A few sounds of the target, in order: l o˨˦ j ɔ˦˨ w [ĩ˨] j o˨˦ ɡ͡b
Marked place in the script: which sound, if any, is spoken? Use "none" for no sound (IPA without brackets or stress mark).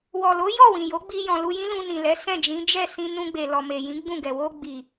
ĩ˨